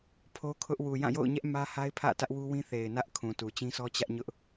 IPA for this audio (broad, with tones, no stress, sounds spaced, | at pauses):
pʰ o˦ kʰ ʊ˦ ʔ w u˨ j ã˦˨ j o̰˦˨ ʊ̯ ɲ ɛ˦ ʔ m ä˦ h a˦ ɪ̯ pʰ ä̰˦˨ t ä˦ ʔ w u˦ w ĩ˦ θ e˨ ɪ̯ n ä˦ ʔ kʰ ũ˨ t u˨ t͡ɕ ĩ˦ s ɔ˦ t͡ɕ ä˦ ʔ ɲ ʊ˦ ʔ